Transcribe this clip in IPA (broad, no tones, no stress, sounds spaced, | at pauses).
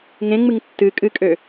ŋ ẽ ŋ͡m ɨ ŋ tː ɨ kʼ ɨ kʼ ø